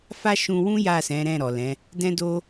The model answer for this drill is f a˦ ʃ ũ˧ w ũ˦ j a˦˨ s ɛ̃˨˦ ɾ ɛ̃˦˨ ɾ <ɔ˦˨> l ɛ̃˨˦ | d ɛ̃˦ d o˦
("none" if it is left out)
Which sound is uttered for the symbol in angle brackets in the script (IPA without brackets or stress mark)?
ɔ˨